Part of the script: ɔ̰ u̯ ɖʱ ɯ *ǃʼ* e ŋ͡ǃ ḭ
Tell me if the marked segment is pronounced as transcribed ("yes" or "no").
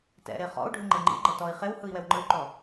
no